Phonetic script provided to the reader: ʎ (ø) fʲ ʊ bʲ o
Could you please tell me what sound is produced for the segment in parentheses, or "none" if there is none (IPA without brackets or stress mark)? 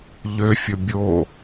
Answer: ø